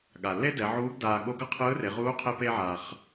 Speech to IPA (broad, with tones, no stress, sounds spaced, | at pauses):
ɠ a˩ lː e˥ d ɛ˩˧ ʕ uː˧˥ ɡ d aː˧ ɠ o˥ ɡ ʌ˥ qʰ ɯː˧˥ r e˩˧ ʁ uː˧˥ qʰ e˧ p e˧ ʕ aː˩ χ